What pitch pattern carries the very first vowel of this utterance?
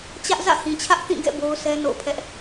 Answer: high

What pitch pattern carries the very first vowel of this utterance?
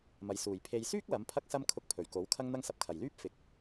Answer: low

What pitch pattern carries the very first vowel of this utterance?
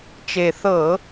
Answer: low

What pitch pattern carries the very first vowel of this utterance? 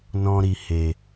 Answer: high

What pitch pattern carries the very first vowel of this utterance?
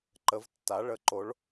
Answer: rising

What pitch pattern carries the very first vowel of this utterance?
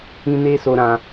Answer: high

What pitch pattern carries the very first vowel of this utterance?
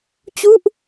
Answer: falling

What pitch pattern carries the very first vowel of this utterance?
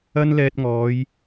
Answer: high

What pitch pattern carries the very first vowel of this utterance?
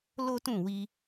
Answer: high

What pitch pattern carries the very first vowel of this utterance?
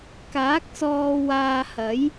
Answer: rising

